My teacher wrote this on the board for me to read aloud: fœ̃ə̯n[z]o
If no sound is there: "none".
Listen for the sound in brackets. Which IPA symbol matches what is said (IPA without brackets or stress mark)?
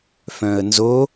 z